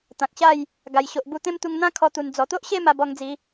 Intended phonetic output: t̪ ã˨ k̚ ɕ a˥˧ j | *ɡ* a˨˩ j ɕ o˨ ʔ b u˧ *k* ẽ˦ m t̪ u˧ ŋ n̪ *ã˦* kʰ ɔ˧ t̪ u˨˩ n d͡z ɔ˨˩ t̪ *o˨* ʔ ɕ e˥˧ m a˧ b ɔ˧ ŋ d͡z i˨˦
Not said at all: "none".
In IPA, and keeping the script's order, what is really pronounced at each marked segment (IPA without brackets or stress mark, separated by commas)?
ɡ, t̪, ã˦, o˦